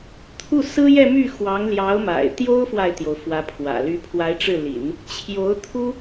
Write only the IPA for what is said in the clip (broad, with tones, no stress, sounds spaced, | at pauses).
t̪ʰ u˥˩ s ɹ̩˥ j ɛ˥˧ m y˥˩ x w ɑ˧˥ ŋ l j ɑ˧˥ ʊ̯ m a̰˨˩ ɪ̯ t̪ j o˥ ʊ̯ f w a˨ ɪ̯ t̪ j o˩ ʊ̯ f w ä˧˥ pʰ w ä̰˨˩ l y˧˥ pʰ w a˧˥ ɪ̯ ʈ͡ʂ ɻ̩˥˩ l ḭ˨˩˦ n | t͡ɕʰ j o˧˥ ʊ̯ t̪ʰ u˥